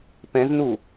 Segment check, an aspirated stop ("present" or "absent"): absent